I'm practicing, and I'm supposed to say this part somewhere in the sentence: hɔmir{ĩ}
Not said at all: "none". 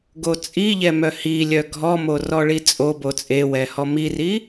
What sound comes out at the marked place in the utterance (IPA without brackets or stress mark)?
i